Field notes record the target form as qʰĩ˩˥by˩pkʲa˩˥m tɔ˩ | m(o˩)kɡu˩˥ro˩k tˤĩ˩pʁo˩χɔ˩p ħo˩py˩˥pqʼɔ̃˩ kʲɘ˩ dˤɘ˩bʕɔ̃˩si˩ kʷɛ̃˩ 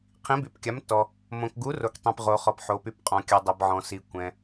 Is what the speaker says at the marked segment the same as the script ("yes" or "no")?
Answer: no